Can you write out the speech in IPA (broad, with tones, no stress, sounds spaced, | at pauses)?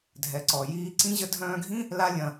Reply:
dʱ ɛ˨ ǀ ɔ˨ j iː˧ ǀ ĩ˦ ʑ ə˧ dʱ œ̃ː˧ ɡʱ ĩ˦ | l a˦ lʲ ɐ̃˧